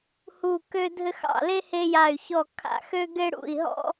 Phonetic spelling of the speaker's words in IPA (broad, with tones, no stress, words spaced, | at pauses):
hu˦˨kø˥dʱɘ˥x ɑ̰˦˨le˥ he˥ja˦˨y̯ çɔ˦˨ kʰa̰˦˨xø˥ ɡe˥ɽṵ˦˨i̯ɦɔ̰˥